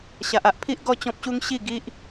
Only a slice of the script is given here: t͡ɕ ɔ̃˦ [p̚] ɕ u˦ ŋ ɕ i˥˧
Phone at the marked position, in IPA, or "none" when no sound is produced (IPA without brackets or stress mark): p̚